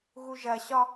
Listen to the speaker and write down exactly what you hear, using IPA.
ɣ u ʒ ɐ ɕ ɒ

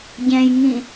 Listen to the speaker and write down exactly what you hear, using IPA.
ɟ ɛ̃ j ŋ ĩ

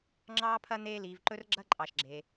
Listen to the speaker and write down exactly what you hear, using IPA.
ŋ͡ǁ ɑː˦ pʰ ɐ˦ n̪ eː˦ l iː˧ v ǃ ɵ˦ r ɡ͡ǁ ɐ˦ ǃʼ ɑ˧ ʃ ɡ͡ǁ eː˧

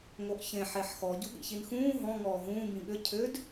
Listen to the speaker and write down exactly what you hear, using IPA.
ŋ o ʔ ç ẽ ħ e ħ x ɔ ɟ u ɠ ḭ ç i n x ũː ɦ ɔ̃ ŋ ɔː ɦ ũː b ĩ ɠ ʏ cʰ ʏ d

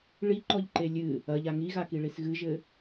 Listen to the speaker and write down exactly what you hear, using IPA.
ɭ i ǃ ɔ ʎ ǃ e lʲ ɨ | ɐ ʎ a ŋ i ɣ a k i ɭ i s ɣ ɨ ʒ ɘ

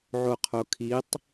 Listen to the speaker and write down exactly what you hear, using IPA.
ʕ o qʰ o kʰ i tˤ

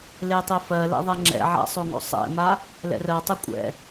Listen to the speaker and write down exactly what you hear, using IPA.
l e tˤ e f ɜ l ɛ̰ ðˤ ɛ ŋ͡ǁ ɛ̰ ʕ a̰ sˤ o ŋ o̰ sˤ ɛ̰ m a | l ɛ̰ r ɜ tˤ ɛ kʷʼ ɛ̰

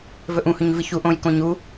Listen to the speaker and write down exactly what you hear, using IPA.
v ɵ ʔ ũ h ɵ ɲ v ɨ ç u ʔ õ j k õ ɲ u

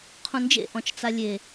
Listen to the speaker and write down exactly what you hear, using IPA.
qʰ ũ n d͡ʒ ḛ ʔ ɔ̃ t͡ʃ t͡s a lʲ e

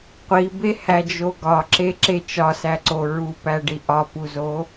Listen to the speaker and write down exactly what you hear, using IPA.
qʷ i b e h æ d͡ʒ o ɡ ɒ ǁ e ǁ e t͡ʃ ɒ s æ ǀ o ɹ u p æ ɖ i ʔ ɒ p u z o

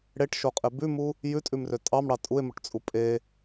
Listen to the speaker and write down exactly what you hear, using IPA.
ɽ e ʈ ʃ o qʼ e b ʉ m u | j ʉ tʼ ʉ m r ø tʼ ɑ m ɽ ɑ tʼ u e̯ m o ʈ t͡sʼ u pʼ e

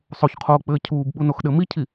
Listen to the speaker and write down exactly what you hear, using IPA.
sˤ o ç qʰ oː k͡p ɘː cʰ uː b ɓ u n o x ɗ ɘ m i cʰ i

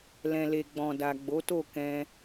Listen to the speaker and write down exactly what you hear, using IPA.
l ɛ̃˨ l e˨ ɡ͡b ɔ̃˨ d a˨ ɡ͡b o˨˦ t o˦˨ k ɛ̃˧

